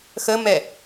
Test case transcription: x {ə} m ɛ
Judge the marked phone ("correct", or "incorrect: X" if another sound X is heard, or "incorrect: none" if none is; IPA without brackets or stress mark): correct